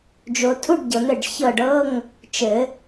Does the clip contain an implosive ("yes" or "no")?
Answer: no